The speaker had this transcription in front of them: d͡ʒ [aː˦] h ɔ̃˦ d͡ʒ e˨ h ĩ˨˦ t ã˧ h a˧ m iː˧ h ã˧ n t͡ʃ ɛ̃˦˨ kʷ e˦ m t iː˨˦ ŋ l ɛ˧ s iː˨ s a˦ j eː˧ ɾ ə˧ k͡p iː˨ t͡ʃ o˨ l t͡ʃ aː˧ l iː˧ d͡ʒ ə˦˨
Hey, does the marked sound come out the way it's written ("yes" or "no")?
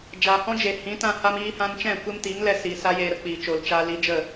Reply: no